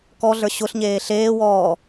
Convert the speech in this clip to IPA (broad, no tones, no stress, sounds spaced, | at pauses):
k ɔ ɮ ə˞ ɕ ʊ ɬ ɲ eː ɬ eː w ɔː